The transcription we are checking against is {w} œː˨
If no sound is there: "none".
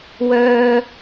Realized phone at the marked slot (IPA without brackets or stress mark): w